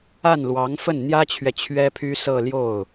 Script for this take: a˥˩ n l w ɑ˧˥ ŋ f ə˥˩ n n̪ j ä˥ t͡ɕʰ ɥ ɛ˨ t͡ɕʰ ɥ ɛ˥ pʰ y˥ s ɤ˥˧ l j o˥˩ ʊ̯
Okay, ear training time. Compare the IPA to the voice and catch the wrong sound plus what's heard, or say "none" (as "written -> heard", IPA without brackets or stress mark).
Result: none